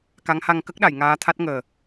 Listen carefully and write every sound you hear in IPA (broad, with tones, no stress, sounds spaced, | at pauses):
k a˧˥ ŋ h a˧ ŋ k ə˦˥ k̚ ɗ a˨˩˨ j ŋ aː˧˥ t̪ʰ a˦˥ t̚ ŋ əː˨˩